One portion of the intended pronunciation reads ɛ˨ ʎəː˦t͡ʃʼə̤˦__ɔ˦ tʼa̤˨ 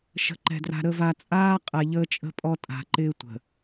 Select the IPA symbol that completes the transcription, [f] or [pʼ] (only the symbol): pʼ